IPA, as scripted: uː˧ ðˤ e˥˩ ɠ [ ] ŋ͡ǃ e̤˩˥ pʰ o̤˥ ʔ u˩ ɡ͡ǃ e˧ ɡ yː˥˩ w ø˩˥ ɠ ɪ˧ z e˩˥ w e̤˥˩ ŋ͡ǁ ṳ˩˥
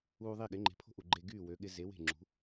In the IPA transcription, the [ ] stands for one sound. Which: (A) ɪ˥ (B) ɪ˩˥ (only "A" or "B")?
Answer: B